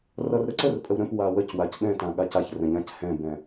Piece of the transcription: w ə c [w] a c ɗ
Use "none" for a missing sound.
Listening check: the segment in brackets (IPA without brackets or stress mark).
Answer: w